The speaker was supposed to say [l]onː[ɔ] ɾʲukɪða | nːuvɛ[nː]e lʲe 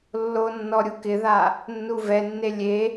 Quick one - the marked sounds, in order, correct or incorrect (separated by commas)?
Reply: incorrect, correct, correct